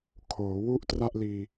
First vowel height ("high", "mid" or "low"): mid